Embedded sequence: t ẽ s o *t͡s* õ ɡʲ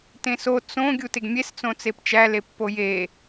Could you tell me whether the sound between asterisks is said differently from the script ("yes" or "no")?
no